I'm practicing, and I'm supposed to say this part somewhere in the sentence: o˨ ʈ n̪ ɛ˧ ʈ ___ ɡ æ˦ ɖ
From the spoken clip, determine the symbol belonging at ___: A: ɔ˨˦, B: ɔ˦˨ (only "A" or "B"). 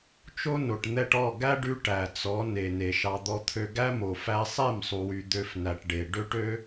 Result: B